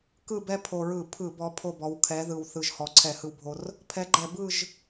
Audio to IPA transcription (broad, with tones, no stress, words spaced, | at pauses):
kɯ˦˨bɛ˦ pʰo˨˩ɹɯ˧˩˧pʰɯ˧˩˧bɔ˨˦ pʰo˦˨bɔ˨˦w kʰɛ˨˦ðɯ˨˩wθɯ˨˩ʒ hɔ˨˩ǀʰɛ˧˩˧ hɯ˦wbʱo˦r | pʰɛ˨˦ɡ͡ǃɛ˧˩˧ bɯ˦˨ʒ